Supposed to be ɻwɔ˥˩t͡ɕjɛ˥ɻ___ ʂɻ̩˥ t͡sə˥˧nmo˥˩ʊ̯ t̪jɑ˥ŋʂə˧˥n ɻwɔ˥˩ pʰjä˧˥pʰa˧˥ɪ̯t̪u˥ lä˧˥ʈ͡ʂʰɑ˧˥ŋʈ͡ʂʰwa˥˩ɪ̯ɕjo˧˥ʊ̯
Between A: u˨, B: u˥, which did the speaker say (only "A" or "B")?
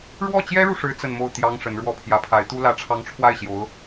A